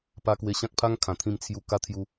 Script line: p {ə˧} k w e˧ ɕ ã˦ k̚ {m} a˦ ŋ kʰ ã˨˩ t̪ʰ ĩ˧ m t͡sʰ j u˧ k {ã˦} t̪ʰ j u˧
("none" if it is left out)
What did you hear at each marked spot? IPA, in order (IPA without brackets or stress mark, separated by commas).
a˧, pʰ, a˦